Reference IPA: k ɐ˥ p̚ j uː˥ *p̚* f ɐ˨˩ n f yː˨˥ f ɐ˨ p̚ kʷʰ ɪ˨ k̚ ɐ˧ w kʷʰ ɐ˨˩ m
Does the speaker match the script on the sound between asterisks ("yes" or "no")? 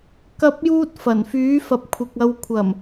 no